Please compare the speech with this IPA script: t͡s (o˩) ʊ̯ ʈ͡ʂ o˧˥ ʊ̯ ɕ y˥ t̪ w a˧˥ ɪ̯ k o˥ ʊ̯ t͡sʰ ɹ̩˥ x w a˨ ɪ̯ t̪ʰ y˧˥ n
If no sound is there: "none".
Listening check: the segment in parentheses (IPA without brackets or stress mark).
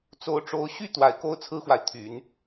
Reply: o˧˥